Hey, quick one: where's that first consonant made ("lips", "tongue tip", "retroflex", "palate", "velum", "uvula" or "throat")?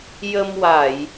palate